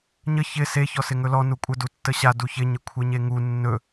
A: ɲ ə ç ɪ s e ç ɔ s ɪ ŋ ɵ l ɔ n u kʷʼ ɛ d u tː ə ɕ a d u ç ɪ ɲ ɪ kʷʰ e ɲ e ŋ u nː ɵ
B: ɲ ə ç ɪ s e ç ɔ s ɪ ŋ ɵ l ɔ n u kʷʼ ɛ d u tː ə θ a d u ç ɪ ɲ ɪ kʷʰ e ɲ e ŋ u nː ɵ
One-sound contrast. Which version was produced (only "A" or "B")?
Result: A